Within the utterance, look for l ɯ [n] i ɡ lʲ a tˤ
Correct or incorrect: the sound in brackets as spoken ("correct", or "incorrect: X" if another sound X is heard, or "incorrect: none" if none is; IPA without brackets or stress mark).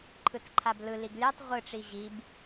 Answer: incorrect: l